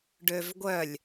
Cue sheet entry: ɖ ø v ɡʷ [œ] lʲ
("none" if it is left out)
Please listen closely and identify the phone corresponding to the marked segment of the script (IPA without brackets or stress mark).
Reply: œ